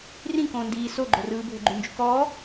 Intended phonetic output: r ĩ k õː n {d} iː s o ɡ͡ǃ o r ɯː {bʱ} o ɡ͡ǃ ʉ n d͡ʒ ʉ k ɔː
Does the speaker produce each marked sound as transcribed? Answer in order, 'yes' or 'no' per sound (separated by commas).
yes, yes